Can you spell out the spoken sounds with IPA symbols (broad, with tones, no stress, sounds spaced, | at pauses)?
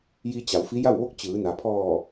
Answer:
j i˧ t͡ɕ a˩˧ w f i˧˥ j a˥˨ w ʋ o˥˨ k̚ t͡ɕ ɯː˩˧ n a˩ pʰ ɔː˧˩